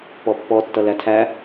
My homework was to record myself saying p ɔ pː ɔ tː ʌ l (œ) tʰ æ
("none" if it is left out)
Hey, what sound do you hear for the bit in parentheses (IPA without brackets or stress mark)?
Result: æ